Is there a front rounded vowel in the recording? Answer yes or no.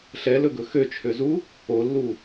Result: yes